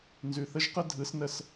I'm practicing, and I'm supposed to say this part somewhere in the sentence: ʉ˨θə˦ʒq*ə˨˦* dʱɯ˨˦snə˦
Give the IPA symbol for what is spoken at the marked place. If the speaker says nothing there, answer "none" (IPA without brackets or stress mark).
ə˦